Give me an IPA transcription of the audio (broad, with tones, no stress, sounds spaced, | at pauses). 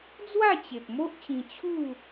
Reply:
d͡z w a˥˧ t͡ɕ e˨ p̚ m o˦ ʔ t͡ɕ ĩ˧ t͡ɕʰ u˥˧